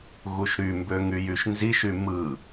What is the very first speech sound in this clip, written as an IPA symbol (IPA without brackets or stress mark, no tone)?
ɣ